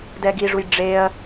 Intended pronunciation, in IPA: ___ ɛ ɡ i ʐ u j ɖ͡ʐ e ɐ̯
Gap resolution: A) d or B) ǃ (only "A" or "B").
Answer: A